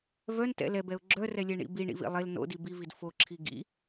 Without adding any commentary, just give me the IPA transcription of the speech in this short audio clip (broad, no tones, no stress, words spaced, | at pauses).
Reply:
vœntɛ̰ lɛbɛʊ̯ ɡ͡ǁœrɛlʲɛɳḭ biɳḭvḭ lˠel no̰di bivid foǁʰi ɡḭ